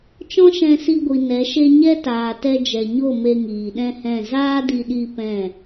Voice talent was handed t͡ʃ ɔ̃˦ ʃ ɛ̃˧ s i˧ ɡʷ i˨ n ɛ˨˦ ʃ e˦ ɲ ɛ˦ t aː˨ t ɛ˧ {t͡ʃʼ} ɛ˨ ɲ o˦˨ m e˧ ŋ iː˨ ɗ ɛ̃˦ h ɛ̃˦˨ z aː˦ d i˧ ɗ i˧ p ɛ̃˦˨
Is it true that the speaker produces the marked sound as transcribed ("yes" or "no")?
no